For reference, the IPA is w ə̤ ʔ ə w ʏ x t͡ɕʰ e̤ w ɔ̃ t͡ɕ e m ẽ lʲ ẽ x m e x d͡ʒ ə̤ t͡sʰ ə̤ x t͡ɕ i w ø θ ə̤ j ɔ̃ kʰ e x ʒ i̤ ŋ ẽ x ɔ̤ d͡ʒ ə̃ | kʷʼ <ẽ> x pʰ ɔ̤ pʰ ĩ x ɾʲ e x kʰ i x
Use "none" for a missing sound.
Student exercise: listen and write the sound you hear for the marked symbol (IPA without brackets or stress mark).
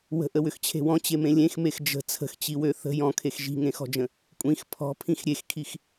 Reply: ĩ